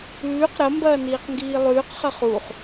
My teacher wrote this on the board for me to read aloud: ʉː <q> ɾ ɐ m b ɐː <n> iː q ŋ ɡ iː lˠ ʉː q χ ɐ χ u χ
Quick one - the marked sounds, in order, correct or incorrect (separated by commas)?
correct, correct